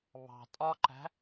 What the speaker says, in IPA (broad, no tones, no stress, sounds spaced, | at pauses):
β ɑ̤ tʼ ɒ ǃ æ̤